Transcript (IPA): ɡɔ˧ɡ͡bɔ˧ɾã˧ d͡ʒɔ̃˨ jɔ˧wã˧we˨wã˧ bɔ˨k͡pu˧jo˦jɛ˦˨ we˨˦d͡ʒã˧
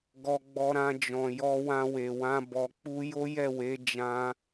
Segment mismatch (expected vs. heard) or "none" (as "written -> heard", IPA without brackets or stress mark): none